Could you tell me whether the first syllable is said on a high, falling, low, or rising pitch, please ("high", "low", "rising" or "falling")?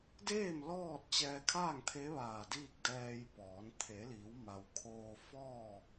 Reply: falling